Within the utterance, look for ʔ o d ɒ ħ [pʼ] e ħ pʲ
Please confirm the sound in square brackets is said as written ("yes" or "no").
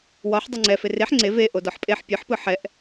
yes